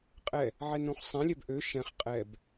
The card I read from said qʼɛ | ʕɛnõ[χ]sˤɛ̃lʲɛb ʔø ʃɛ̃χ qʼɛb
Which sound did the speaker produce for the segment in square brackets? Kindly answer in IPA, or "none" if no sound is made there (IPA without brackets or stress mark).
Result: χ